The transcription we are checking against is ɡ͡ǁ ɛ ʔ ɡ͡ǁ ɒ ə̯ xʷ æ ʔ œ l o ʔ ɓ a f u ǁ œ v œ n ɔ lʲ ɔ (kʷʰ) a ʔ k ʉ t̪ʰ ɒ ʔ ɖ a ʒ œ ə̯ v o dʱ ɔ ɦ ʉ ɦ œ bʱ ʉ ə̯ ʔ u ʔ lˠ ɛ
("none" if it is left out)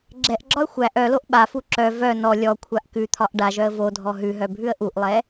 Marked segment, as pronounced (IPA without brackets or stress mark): kʷʰ